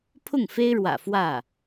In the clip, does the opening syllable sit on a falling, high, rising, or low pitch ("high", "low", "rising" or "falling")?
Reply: falling